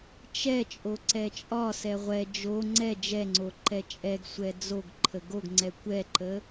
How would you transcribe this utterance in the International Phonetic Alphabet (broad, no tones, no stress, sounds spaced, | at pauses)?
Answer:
t͡ʃ ɛ t͡ʃʼ o ǀ ɛ t͡ʃʼ ɒ s ɛ ʁʷ ɛ d͡ʒ o ŋ͡ǀ ɛ d͡ʒ ɛ ŋ͡ǀ o ǃ ɛ t͡ʃʼ ɛ ɡ sʷ ɛ d͡z o ɡ ǃʰ ə ɡ o ɡ ŋ͡ǀ ɛ kʷ ɛ ǃ ə